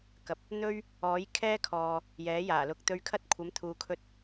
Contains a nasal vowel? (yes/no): no